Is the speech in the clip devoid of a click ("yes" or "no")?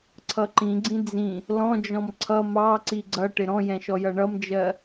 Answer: no